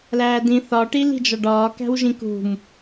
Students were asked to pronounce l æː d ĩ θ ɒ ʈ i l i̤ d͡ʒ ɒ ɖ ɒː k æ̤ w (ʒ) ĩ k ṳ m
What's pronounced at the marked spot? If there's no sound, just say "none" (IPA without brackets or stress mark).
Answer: ʒ